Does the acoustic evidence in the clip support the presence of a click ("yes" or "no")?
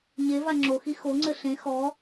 yes